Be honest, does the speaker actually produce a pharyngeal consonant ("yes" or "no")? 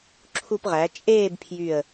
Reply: no